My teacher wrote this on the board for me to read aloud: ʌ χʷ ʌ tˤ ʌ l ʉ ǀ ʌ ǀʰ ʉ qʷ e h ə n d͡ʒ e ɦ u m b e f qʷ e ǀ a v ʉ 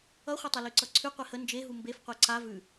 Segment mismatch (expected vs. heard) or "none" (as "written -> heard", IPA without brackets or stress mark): none